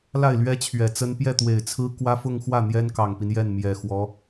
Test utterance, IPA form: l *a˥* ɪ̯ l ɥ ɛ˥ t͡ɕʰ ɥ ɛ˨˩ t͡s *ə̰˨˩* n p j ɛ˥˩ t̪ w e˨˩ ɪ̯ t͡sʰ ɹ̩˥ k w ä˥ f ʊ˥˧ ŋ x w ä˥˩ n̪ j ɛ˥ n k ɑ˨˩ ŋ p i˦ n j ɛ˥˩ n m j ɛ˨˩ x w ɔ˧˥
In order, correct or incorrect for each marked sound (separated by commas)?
incorrect, incorrect